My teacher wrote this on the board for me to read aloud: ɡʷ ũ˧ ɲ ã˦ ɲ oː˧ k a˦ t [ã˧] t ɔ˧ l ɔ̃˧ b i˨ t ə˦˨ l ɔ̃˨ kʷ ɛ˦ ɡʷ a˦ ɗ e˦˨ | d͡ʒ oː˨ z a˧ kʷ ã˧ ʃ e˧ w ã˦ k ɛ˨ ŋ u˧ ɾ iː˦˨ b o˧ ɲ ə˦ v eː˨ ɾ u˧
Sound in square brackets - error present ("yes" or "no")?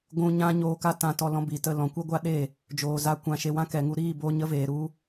no